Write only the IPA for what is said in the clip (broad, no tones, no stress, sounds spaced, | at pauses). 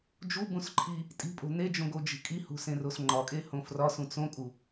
d͡ʒ u b ũ s ǃʰ i | tʼ i̤ pʼ o̤ n e d͡ʒ õ ɡ o d͡ʒ i̤ kʼ i h ṳ s ẽ r o s ŋ͡ǃ ɒ kʼ e h õ f r ɒ s ũ t͡s õ kʼ u